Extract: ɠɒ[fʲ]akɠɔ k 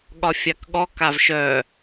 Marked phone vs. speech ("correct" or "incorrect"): correct